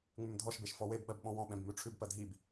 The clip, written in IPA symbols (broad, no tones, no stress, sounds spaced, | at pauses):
ŋ͡m ʉ m dʱ ɔ ʃ b e ʃ f ɔ w e b ɓ ɜ b ɓ ɔ̃ w ɔ̃ ɓ ɛ̃ b m ʉ ʈ͡ʂʰ ʉ b p ɜ dʱ i b